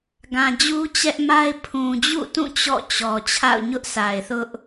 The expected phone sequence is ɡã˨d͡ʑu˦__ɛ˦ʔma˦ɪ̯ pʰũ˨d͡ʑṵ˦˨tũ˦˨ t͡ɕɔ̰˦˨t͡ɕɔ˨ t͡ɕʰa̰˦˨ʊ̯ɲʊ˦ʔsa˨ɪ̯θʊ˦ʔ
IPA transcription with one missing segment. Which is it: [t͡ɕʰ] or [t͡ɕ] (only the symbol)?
t͡ɕ